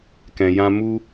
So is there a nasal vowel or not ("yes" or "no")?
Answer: yes